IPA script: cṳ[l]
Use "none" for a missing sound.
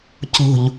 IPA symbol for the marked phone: ʎ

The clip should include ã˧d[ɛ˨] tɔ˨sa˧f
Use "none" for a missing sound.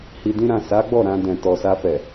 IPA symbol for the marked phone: ɛ̃˨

